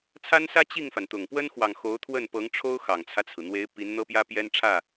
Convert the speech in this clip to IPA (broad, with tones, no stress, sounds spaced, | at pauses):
t͡sʰ a˥ n s ä˥ t͡ɕ i˥˩ ŋ f a˩ n t̪ ʊ˨˩ ŋ p w ə˥ n x w ɑ˨ ŋ x o˧˥ ʊ̯ t̪ʰ w ə˥˩ n p ɤ˧˥ ŋ ʈ͡ʂʰ o˥ ʊ̯ x ɑ˨˩ ŋ t͡sʰ ä˦ t͡sʰ ɹ̩˩ n̪ w e˧˥ ɪ̯ p i˧˥ n n̪ ɤ˥ p j ä˥ p j ɛ˥ n ʈ͡ʂʰ ä˥˩